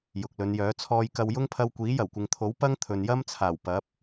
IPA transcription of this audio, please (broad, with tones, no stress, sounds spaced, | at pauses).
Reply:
j ʊ˨ k̚ l ɵ˨˧ n j œː˨˥ t͡sʰ ɔː˧ j k ɐ˧ w j ʊ˥ ŋ pʰ ɐ˧ w kʷ iː˨˥ j ɐ˨˩ w kʷ ɪ˨ ŋ t̪ʰ o˨˥ w p ɐ˥ ŋ t̪ʰ ɵ˨ n j ɐ˥ m t͡sʰ aː˨˩ w p ɐ˨˥ p̚